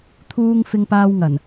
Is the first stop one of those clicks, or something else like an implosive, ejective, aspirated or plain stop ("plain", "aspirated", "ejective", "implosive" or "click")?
aspirated